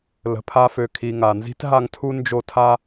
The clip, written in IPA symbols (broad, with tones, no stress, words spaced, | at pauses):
lə̤˨pʰa˦fø˨ kʰi˨ŋa˩nzi̤˥tɦa˦ŋ tʰu˥ nd͡ʒo˦tʰa˥